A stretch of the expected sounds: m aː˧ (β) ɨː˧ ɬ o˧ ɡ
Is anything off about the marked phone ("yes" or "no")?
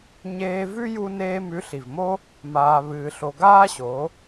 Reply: no